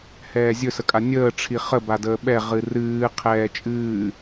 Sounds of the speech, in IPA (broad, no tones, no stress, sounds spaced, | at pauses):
h ɛː zʲ ɵ s ə kʼ a nʲ əː ʈ͡ʂʰ i χ ə b a d əː ɓ ɛ ʁ ɨ r ɨː qʰ ɛː t͡ʃʼ ɨː